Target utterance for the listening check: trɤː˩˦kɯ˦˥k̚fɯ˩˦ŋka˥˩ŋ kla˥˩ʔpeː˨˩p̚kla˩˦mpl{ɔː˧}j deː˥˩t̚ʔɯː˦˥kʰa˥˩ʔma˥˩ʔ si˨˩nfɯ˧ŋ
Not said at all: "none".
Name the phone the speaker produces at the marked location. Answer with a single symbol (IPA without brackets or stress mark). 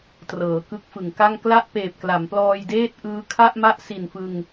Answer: ɔː˧